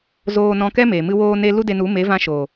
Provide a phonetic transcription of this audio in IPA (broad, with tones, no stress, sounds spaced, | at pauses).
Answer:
z oː˧ n ɔ̃˧ k ɛ˦ m e˨ m ɨ˧ w oː˧ n e˧ l u˦ d e˧ n u˨˦ m e˨˦ v ã˧ ʃ o˨